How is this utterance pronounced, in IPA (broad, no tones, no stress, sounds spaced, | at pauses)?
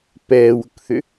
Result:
p ɛː w ʊ k θ ʏ